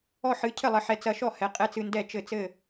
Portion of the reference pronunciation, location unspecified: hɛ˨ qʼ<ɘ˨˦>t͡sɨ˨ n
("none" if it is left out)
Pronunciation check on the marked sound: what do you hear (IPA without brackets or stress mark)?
ɛ˨˦